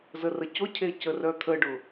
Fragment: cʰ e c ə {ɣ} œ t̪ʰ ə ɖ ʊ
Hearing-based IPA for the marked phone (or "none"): r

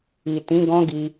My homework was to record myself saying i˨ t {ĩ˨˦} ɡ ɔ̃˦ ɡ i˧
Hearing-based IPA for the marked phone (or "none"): ĩ˨˦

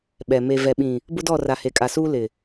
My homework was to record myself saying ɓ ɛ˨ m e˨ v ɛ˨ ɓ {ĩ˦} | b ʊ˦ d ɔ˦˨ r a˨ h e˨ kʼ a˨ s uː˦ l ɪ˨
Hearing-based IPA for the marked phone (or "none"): ĩ˨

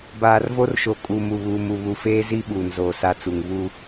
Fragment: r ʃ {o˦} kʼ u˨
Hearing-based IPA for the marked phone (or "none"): o˨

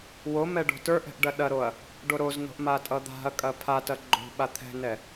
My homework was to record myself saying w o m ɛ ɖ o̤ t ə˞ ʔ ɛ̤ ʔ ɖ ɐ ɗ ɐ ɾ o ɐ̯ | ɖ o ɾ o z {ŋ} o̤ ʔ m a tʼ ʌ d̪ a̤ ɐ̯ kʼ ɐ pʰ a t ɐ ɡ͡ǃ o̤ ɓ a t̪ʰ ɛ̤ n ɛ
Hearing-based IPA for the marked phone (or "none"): n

